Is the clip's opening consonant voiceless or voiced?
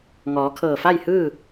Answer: voiced